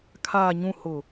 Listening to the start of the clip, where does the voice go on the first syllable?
low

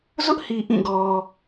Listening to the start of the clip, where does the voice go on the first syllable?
high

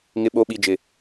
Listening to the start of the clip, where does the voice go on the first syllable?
low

